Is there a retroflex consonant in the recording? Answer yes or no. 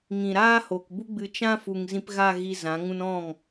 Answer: no